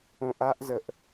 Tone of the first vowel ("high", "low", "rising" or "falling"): low